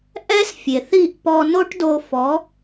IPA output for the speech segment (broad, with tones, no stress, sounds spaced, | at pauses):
ʔ ɛ˥ s fʲ e˩ θ i˥˩ ʔ p ɔ˧ n o˥ ʈ d o˧ f ɔ˩˥